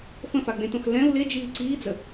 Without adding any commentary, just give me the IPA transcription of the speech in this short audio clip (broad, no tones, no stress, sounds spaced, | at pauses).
f ə̃ f a ɡ͡b ẽ t õ x l ɛ̃ u̯ l e d͡ʒ iː ǀ iː d͡z ə